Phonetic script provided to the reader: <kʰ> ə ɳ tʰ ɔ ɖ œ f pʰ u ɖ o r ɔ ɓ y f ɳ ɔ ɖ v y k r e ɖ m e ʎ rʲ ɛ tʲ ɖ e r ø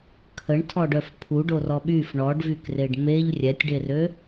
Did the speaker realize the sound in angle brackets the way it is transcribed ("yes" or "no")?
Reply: yes